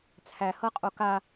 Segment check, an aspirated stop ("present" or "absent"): present